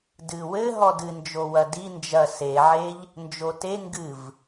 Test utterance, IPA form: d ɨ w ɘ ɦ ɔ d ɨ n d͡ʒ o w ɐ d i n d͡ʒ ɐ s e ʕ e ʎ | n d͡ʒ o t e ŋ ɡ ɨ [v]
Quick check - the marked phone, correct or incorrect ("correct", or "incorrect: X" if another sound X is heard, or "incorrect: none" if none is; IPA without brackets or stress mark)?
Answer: correct